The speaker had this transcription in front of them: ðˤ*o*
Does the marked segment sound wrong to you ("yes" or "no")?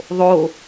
no